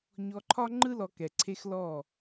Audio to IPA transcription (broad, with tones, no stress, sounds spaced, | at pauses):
ɲ ɔ˧ ǃʰ ɒ˦ ŋ͡ǃ ɯ˦ l ɔ˧ k ɛ˨ ǀʰ e˦ x l ɔ˦˨